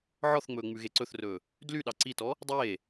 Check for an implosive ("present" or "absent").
present